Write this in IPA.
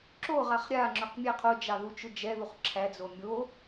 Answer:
ǁoʁaχ ɾʲaŋ͡ǁʊq mʲæqʰod͡ʒɑ ðut͡ʃʊd͡ʒɛðuχ ǁʰæd͡zo mʲo

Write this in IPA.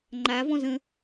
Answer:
ŋ͡ǃa vɔ̃zə̃

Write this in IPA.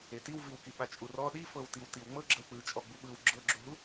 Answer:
etiwviwki ɓat͡ʃʼurɔ ɗifɤwtiw tiwŋ͡mɤ ɡ͡ǁɤwk͡pɯt͡ʃʼɔ ɡ͡buɓɯw ɡ͡ǁɤɡ͡ǁuɦu

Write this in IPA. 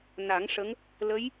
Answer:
na˨˩˦ŋʂə˧˥ŋ | lə˧˥j

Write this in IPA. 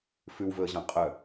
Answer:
fʉwvɵə̯ʑɑ̃ qʼœ

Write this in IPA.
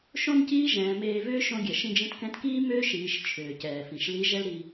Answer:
ʃõ˥nciː˥ ʒɛ̃ː˩˧meː˧ vʏː˥ ʃõ˧ɡʲɛ˩ ʃĩ˧d͡ʒĩ˧tkɛ̃˧˥tkiː˥ mʏː˥ʃiː˩˧ʃ t͡ʃʰʏː˩cɛː˩ fĩ˩ʃli˧˥ ʒɛ˥lɾi˧

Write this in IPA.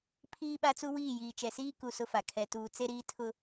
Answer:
pʰiː˦ ɓa˦t͡su˦ wiː˦˨jiː˨ t͡ʃɛ˨siː˦ ku˨ sʊ˦fa˨ kʰɛ˨tuː˨ t͡se˦ɾiː˦ tʰʊ˦

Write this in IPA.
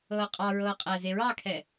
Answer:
ɤːqʼɑɹɤː qʼæzeɹɑkʰɛ

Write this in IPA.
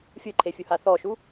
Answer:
fʲɯǃʰefʲuha θɔʃu

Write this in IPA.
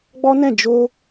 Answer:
ɡ͡bɔ˦nɛ̃˦˨ d͡ʒo˧

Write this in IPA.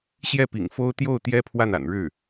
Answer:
ɕjɛ˥˩pḭ˨˩ŋ fo˥ʊ̯ t̪jo˥˩ʊ̯t̪jɛ˥ pʰwa˥˩na̰˨˩nɻɻ̩˥˩

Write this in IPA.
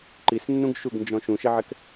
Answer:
ǃisnːũɡʃuɡnd͡ʒɔ̃ ʃũʃeʕɛk

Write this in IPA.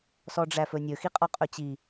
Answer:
sɔɖ͡ʐæfɵnʲɵ xiqʼɔqʼɵt͡ɕi

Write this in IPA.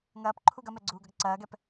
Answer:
ŋɐːpǃʰuɡ ɐmɛɡ͡ǀuːɡɐɡ ǀɐːɡɛp

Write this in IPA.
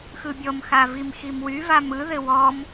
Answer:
xɯbʲɔmxavim ximwy vamɯðɘ wɔm

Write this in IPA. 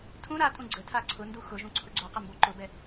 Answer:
tʰũ ɾatʼũ ɡ͡ǀətʰa ǀʰʊndu xʊʒũ ǀʰʊɡ͡ǀoqə mboǃʊbɛ

